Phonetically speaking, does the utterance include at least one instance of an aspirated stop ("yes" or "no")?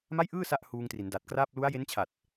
yes